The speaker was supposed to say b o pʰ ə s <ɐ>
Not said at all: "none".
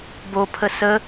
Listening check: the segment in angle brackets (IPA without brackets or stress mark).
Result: ə